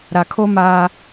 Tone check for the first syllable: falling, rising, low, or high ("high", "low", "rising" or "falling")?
low